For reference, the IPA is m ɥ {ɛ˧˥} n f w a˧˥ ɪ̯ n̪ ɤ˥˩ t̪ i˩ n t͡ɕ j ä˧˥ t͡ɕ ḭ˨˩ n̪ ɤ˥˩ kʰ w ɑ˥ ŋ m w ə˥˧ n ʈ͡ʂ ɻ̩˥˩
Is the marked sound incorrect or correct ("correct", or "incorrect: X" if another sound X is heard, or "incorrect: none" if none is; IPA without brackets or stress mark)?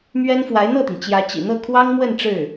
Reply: incorrect: ɛ˥